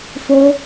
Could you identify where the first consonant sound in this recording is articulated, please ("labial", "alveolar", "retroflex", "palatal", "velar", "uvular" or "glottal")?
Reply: labial